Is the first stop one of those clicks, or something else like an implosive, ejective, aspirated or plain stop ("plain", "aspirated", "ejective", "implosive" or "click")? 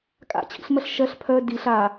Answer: ejective